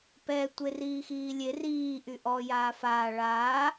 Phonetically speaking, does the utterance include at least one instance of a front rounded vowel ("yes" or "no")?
yes